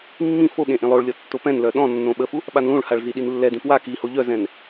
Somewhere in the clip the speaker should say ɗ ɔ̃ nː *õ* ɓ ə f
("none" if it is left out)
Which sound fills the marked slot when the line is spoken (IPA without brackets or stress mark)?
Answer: õ